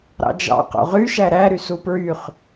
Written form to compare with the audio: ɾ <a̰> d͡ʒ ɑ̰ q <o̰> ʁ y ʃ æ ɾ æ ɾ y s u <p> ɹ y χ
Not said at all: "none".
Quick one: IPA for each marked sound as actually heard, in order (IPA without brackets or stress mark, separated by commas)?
ɑ̰, o̰, p